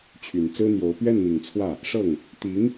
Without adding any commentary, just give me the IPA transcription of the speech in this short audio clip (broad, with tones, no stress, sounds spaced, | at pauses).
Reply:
t͡ɕʰ y˨˩ n t͡s ɹ̩˥ n̪ j o˧˥ ʊ̯ p ɥ ɛ˥˩ n n̪ i˨˩ ŋ t͡sʰ w ä˥˩ | ʂ ɤ˥˩ ŋ | t̪ i˧˥ ŋ